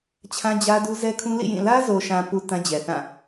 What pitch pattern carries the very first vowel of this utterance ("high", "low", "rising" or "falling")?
high